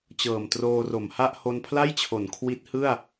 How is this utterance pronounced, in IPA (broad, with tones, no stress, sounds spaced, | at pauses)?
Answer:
t͡ɕ ɤː˨˩ m t r oː˧ r o˩˦ m h a˥˩ ʔ h o˧ n pʰ l a˥˩ j t͡ɕʰ o˩˦ n kʰ w i˦˥ t̚ h ɯ˥˩ a̯